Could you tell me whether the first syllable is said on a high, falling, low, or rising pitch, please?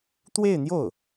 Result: falling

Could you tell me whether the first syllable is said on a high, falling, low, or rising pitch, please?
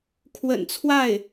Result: low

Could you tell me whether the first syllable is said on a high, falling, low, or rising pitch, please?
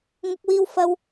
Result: high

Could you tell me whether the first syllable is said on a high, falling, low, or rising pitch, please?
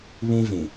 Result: high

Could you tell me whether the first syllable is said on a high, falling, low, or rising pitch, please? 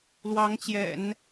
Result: rising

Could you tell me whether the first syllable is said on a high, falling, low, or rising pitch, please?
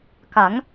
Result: rising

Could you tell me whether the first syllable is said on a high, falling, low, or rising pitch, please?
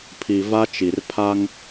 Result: low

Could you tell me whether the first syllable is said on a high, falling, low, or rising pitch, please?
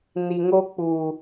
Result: low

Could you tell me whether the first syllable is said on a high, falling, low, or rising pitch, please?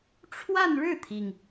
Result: falling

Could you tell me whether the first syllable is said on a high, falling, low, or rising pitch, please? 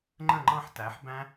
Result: falling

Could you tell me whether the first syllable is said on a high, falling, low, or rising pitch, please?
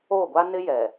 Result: falling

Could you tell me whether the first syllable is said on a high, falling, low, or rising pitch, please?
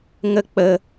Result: high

